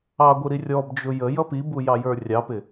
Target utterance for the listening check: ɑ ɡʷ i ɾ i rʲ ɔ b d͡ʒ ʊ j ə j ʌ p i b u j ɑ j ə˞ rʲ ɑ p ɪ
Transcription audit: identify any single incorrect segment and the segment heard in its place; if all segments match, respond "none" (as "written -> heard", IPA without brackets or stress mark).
none